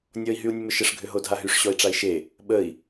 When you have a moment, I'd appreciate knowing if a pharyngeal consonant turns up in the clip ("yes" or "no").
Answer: no